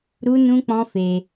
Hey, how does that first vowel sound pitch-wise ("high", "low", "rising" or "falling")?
high